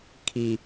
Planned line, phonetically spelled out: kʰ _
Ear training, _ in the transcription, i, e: i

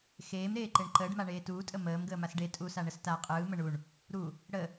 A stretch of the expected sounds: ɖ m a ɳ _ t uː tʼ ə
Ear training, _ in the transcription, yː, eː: eː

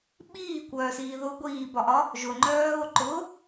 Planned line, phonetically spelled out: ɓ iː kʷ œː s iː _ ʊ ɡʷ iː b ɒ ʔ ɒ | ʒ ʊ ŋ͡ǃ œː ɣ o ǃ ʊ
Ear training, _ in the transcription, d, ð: ð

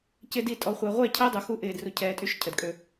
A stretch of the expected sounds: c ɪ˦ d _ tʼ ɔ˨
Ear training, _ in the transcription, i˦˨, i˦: i˦˨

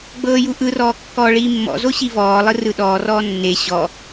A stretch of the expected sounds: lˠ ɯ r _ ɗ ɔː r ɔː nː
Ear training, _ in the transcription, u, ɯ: ɯ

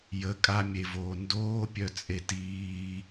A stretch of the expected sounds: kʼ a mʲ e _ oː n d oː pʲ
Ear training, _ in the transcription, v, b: v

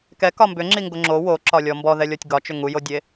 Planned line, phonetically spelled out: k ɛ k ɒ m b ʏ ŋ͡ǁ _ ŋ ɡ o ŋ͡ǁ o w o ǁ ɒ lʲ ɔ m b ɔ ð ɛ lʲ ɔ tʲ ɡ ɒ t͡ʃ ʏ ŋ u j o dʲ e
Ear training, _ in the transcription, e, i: i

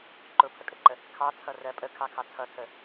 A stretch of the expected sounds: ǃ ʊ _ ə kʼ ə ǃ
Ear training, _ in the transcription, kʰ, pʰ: pʰ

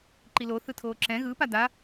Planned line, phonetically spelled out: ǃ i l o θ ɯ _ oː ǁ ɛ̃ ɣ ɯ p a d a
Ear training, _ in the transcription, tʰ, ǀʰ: tʰ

